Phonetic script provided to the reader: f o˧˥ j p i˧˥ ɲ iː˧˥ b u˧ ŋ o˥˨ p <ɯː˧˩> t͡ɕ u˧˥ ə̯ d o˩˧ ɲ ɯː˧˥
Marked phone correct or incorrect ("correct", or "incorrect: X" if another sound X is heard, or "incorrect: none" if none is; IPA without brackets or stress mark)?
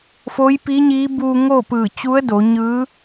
correct